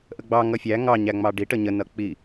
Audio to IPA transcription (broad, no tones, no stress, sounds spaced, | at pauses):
ʔ ə ɡ͡b ɑ ŋ ʌ fʲ æ ŋ ɑ ɲ æ ŋ͡m ɑ ɖ i ʈ ə ɲ ə n ʌ k͡p i